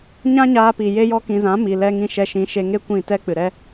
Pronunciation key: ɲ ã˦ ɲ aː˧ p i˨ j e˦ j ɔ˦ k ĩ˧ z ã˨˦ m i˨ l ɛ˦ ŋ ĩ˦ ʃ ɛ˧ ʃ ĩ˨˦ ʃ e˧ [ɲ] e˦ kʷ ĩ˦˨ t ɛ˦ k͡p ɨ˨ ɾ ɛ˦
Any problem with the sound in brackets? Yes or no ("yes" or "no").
yes